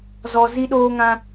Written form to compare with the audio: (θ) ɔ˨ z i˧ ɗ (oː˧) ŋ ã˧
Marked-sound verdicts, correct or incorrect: incorrect: z, correct

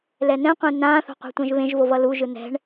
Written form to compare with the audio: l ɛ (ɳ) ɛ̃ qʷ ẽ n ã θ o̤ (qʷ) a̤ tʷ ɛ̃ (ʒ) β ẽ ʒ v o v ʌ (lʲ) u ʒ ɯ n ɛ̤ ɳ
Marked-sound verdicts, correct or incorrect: incorrect: n, correct, correct, incorrect: l

